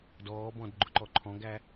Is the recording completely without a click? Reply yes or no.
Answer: no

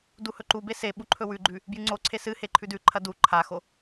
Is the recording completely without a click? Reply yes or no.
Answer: no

